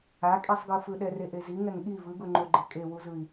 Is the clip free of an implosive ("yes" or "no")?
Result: no